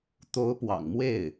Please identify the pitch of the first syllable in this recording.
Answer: rising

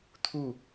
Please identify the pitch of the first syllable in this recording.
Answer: falling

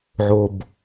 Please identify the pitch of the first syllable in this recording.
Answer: low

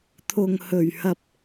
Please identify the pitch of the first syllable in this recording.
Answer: low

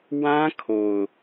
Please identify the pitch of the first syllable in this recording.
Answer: high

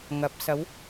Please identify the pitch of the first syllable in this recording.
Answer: rising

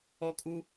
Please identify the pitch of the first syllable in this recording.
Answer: high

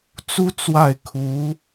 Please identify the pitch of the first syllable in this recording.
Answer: high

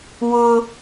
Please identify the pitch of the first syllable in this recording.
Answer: high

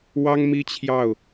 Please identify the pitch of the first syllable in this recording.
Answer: high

